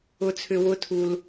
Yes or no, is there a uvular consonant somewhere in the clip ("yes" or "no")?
no